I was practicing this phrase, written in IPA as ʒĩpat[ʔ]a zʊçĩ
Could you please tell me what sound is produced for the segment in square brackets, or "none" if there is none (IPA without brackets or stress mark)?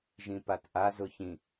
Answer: ʔ